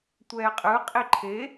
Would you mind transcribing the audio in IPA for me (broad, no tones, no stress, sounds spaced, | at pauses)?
tʷ ɛː qʼ ɯ qʼ i ǃʰ e